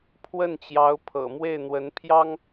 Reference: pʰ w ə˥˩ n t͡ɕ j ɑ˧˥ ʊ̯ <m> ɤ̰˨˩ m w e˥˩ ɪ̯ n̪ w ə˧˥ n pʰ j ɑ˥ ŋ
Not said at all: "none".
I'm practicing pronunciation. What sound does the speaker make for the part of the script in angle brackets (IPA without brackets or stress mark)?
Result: pʰ